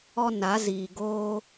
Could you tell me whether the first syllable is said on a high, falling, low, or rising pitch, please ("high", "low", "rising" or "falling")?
high